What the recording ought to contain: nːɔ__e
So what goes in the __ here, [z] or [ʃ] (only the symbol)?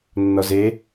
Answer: z